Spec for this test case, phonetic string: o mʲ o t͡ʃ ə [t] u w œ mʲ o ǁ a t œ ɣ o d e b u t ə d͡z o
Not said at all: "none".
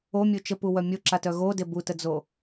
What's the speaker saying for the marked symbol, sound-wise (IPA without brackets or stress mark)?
p